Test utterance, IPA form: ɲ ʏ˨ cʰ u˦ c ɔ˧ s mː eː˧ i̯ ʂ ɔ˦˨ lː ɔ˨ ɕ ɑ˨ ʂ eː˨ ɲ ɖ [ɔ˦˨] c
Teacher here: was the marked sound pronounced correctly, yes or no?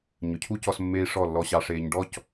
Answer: yes